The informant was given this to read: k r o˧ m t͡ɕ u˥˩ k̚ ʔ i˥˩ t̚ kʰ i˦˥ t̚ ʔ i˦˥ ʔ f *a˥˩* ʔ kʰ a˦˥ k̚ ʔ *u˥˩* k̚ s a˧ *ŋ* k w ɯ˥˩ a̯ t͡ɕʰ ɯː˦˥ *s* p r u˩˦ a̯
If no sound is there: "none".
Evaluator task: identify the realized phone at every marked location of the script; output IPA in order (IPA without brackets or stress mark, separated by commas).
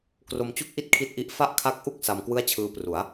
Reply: a˥˩, u˥˩, m, none